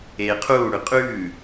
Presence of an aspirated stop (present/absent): present